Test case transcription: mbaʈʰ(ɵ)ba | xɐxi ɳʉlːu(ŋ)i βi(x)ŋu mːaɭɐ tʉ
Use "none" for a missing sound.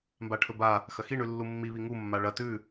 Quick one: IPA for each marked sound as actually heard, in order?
ɵ, mː, none

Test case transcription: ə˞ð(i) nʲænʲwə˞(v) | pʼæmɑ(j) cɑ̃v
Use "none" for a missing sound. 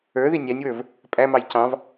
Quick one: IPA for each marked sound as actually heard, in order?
i, v, j

